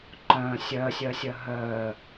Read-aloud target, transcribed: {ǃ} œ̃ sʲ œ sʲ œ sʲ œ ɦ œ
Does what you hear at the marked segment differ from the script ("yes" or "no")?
no